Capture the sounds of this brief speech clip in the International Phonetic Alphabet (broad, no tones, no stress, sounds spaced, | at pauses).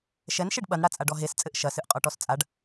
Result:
ʃ ɛ n ʃ e ɖ ɓ ɐ n ɽ a t͡sʼ a ɖ ɔ ɦ e s t͡sʼ ɘ ʔ ʃ ɐ s ɨ ʔ qʼ ɔ ʈ ɔ s t͡sʼ a ɖ